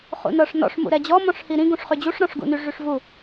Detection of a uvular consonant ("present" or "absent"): present